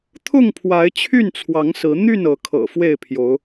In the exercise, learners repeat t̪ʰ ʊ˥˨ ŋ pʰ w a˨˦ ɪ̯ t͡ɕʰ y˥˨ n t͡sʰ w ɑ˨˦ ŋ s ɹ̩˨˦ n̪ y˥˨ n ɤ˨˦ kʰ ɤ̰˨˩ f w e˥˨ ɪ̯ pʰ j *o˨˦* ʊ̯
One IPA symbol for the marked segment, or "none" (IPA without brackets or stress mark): o˨˦